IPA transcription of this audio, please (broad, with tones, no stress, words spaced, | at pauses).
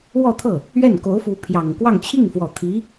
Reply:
wɔ˥˧t̪ʰɤ˥˩ | ɥɛ˥˩n ko˧˥ʊ̯fu˧˥ pʰjɑ˨˩ŋkwɑ˥˧ŋ t͡ɕʰi˥˩ŋfwɔ˨˩t̪ʰi˧˥